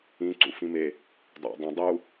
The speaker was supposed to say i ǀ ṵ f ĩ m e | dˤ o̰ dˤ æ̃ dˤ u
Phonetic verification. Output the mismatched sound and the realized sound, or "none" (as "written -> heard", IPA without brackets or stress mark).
i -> ĩ